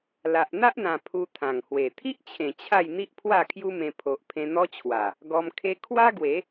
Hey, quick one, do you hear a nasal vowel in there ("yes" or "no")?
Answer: yes